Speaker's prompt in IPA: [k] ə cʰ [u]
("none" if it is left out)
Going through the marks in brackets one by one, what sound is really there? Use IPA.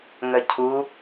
ŋ, u

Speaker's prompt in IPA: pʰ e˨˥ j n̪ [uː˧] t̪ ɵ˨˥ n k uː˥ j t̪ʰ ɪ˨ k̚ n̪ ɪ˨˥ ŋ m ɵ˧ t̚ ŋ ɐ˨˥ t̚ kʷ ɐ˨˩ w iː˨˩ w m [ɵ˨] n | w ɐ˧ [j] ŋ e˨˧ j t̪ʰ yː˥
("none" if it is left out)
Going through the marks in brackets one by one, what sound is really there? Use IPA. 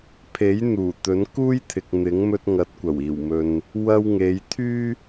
uː˨˩, ɵ˨, w

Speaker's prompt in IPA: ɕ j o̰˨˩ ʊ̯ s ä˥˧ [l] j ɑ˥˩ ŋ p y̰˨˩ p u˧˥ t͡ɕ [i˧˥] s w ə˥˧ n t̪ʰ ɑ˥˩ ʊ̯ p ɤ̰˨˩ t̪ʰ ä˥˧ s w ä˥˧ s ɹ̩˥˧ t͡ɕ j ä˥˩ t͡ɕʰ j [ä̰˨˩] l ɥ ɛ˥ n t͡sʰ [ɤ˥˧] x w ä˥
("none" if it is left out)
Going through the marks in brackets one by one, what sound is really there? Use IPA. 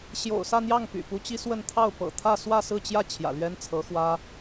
n̪, i˥, ä̰˨˩, ɤ˧˥

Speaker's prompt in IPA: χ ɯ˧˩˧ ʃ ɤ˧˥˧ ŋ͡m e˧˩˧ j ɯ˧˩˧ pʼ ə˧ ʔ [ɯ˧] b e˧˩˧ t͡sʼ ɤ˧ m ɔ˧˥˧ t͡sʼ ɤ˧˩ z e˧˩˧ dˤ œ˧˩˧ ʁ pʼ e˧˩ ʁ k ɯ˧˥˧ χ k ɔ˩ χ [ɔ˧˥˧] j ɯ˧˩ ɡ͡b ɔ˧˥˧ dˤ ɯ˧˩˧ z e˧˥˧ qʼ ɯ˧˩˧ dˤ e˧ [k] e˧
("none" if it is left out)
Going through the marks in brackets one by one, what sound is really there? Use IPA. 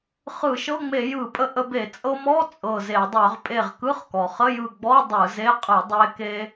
ə˧, ə˧˥˧, k

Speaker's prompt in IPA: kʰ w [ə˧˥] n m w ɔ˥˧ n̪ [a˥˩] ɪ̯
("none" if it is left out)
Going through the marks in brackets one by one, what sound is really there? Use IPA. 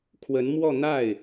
ə˧˥, a˥˩

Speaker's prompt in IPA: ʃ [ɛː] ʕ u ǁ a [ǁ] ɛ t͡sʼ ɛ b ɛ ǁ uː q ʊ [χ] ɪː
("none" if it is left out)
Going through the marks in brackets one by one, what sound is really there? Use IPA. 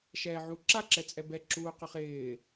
ɛː, ǁ, χ

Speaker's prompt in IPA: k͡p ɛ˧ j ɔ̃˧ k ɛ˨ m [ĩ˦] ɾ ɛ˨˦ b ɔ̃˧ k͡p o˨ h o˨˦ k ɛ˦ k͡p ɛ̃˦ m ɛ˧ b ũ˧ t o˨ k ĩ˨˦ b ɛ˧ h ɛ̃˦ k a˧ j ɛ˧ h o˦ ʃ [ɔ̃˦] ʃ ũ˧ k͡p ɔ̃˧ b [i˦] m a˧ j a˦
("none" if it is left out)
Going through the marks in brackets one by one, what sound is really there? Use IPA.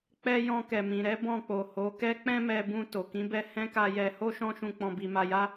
ĩ˨, ɔ̃˦, i˧

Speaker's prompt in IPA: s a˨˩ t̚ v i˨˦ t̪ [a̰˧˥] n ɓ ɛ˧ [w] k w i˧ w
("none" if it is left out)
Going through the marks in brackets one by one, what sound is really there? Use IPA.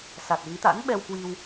a̰˧˥, w

